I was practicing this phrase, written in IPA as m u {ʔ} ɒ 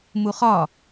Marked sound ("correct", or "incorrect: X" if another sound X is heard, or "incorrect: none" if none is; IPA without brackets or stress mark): incorrect: χ